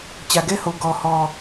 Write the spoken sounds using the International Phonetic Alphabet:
t͡ɕ ä˨ ɡ ɛ˦ h o˨ ɡ ɔ˨ h ɔ˨

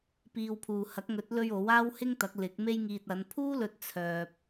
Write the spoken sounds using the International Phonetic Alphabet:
p iː˧ w pʰ uː˨ h ɐ˨˥ k̚ ŋ ɵ˨˥ t̚ l ɵ˧ ɥ o˨˥ w aː˥ w h ɪ˥ ŋ t̪ ɐ˨˥ k̚ l ɪ˨˥ k̚ m e˥ j ŋ iː˧ t̚ ɐ˨˧ n pʰ uː˥ l ɵ˥ t̚ t͡sʰ œː˧ p̚

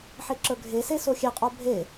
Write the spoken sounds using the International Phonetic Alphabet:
ħ e ǁ ə˞ ɡʱ e s e s o xʲ e qʼ o bʱ e

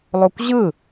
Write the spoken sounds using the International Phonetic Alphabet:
lˠ o kʷ ʑ ɯ

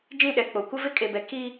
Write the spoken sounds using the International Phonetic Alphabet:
d͡ʒ ĩ˦˨ ɗ ɛ˨ k͡p o˨ kʷ ɪ˦ v ɪ˦ kʼ e˨ b ɛ˨ k i˦

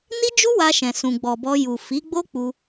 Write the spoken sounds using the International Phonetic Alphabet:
n i˦ d͡ʒ u˦ w a˧ ʃ ɛ̃˨ s ũ˨ ɡ͡b ɔ˨ b ɔ˧ j u˨ f i˨˦ ɡ͡b o˦ k͡p u˧

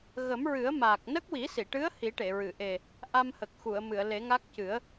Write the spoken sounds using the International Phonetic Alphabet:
ɣ ə˨˩˦ m ɹ ɨ˨˩˦ ə̯ m aː˨˩ k̚ n ə˦˥ k̚ w i˨˩˦ s i˨˩˨ ʈ ɨ˧˥ ə̯ h i˨˩˦ ʈ e˨˩˨ ɹ ɨ˨˩˨ ʔ e˨˩ | ʔ a˧ m h ə˨˩ k̚ x u˨˩˨ ə̯ m ɨ˨˩˨ ə̯ l e˨˩˦ ŋ a˦˥ k̚ c ɨ˨˩˦ ə̯

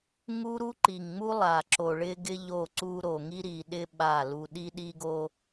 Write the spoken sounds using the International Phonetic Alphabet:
ŋ u˦ ɾ u˦ ǃ i˨ ŋ ŋ͡m u˦ lˠ a˨ ǁ o˨ ɭ ɪ˦ ɡ ɪ˦ ʎ o˦˨ ǀ u˦ ɾ o˨ ŋ i˦ ɾ i˨ ɗ ɪ˦ ɓ a˦˨ l u˦ ɗ i˦ ɗ i˦ ɡ o˦

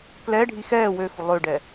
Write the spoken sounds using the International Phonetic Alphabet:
k l ɛ ɖʱ i x ɛː w ø x u lˠ ø ɖ ɛ

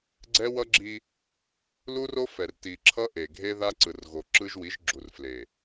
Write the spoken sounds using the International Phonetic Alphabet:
ɡ͡ǀ ɛ˦ w ʌ˦ ɡ͡ǁ i˦ | l u˦ r o˦ f ɛ˨ r t i˨ ǁʰ ʌ˦ ʔ e˨ ɡʱ e˦ ð a˦ ǀ ɯ˨ r ɣ o˨ ǁ ɯ˦ ʒ w i˨˦ ʒ ɡ͡ǁ u˨ r f l e˨

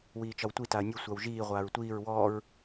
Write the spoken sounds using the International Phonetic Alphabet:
w iː t͡ʃ ɒ w tʷ i t a ɐ̯ nʲ u sʷ a w ʒ iː ʁʷ aː ɹ tʷ iː ɹ w ɔː ɹ

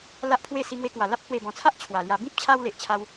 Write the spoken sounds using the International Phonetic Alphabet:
l a˦ ʔ pʰ w e˥˧ s i˧ ŋ w e˧ k w a˨˩ l a˦ p̚ h w e˨˩ b ɔ̃˨˩ t͡sʰ a˦ ʔ t͡ɕʰ w a˨˩ l j a˧ b ĩ˦ p̚ t͡ɕʰ a˧ w l e˨ ʔ t͡ɕʰ a˦ w

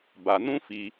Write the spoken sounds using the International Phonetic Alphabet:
b a˧ n ũ˦ f i˧

